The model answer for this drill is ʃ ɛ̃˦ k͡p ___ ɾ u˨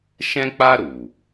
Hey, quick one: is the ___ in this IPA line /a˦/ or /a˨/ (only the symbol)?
a˦